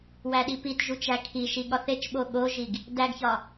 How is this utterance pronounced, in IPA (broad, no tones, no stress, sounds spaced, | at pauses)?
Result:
w æ ɗ i p i t ʒ u t͡ʃ æ kʰ i ʃ i ɠ ɒ θ e t͡ʃ ɓ o ɠ o ʒ i ɡ | d æ ɡ ç ɒ